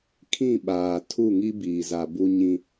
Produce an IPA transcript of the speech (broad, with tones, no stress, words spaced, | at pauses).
kʰĩ˦˨ɓaː˨ tʰu˦˨ŋi˦ biː˨za˨bu˦ɲĩ˦